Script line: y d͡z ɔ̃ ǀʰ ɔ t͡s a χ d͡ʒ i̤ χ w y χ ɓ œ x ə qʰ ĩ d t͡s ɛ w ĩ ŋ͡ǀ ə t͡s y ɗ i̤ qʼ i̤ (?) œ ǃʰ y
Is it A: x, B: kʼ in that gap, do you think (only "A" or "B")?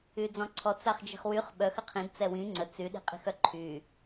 A